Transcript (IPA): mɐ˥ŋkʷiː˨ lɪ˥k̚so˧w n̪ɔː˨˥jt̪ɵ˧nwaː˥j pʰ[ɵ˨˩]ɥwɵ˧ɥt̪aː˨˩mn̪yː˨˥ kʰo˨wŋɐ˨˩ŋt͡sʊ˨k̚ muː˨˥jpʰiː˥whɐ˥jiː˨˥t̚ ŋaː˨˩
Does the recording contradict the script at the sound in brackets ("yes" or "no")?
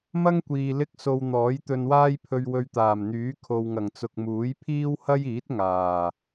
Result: yes